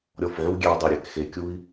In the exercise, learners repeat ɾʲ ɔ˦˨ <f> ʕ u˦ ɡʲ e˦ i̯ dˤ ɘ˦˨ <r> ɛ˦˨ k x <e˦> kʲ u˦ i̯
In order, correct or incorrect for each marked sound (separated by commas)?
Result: correct, incorrect, correct